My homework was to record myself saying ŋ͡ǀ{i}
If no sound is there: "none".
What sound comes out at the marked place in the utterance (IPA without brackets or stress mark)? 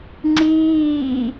iː